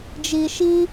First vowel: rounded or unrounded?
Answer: unrounded